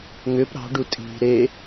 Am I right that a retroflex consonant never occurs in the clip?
no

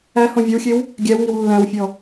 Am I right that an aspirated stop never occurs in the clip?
yes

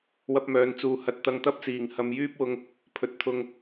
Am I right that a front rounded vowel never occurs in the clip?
no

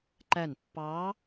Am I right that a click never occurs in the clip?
no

